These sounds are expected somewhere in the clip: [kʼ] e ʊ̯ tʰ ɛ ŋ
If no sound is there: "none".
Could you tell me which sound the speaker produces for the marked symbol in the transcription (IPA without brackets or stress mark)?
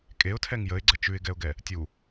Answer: kʼ